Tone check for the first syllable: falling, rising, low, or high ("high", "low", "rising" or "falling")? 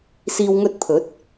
low